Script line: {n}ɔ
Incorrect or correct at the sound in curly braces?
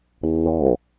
incorrect: lː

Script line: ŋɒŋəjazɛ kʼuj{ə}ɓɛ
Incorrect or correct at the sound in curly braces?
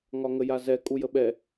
correct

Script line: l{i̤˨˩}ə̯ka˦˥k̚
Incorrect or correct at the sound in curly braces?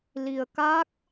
incorrect: i˧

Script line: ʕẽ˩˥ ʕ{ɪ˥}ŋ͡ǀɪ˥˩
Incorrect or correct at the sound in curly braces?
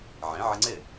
incorrect: ɪ˧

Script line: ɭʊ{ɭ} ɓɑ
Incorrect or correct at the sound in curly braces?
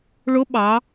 incorrect: none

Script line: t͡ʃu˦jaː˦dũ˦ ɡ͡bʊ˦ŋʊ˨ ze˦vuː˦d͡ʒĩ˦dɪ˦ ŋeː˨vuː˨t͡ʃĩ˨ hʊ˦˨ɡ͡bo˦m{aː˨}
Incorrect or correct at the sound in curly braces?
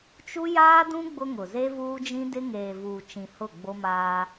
incorrect: aː˦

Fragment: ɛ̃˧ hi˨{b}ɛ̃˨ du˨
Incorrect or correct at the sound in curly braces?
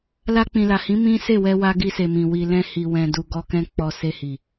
incorrect: w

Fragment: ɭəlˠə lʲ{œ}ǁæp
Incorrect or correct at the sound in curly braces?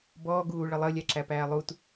incorrect: æ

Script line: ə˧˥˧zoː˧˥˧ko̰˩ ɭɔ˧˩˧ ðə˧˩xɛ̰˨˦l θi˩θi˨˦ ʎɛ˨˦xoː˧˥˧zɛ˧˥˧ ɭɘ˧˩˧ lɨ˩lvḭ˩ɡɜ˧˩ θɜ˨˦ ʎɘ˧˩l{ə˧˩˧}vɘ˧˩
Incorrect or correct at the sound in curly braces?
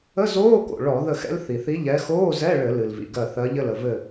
incorrect: ə˩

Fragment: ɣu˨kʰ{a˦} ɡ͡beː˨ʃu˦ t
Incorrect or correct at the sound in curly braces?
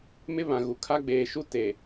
correct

